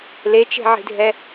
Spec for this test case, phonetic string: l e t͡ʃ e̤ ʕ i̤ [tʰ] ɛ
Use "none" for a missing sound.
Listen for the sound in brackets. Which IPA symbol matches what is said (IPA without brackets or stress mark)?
dʱ